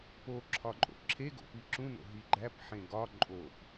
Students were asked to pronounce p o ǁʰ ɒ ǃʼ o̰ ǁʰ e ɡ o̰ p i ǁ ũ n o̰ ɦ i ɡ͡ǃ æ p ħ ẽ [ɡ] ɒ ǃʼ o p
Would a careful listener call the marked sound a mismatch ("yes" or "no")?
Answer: no